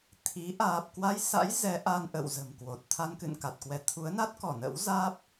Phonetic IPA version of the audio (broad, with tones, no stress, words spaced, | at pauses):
t̪ʰi˨˦ ʔaː˨˩p̚kwa˧jsa̰˧˥j zɛ˨˦ʔa˧nʔə̰˧˨w zə̤˨˩mkwo˨˩t̚ t̪ʰa˧nkɨ̰˧˨nka˨˩t̚kwɛ˨˦ t̪ʰu˨˦ə̯na˦˥t̚kɔ˧˩ nə̰˧˥wzaː˦˥p̚